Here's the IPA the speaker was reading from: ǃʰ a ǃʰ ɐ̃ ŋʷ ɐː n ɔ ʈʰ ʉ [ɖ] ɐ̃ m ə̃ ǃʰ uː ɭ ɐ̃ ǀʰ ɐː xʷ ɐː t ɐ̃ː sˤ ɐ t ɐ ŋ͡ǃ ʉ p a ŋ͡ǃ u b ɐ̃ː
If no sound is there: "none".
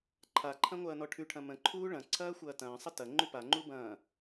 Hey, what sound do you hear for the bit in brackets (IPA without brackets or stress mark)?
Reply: ʈʰ